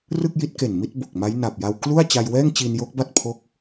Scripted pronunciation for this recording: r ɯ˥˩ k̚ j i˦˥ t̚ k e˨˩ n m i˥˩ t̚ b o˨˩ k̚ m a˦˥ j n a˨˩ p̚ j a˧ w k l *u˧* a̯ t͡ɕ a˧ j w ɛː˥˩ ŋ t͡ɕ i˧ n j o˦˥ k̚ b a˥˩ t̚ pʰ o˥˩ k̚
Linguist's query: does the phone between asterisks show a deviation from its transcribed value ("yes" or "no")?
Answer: yes